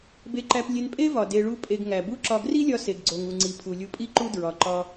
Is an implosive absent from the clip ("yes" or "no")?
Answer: yes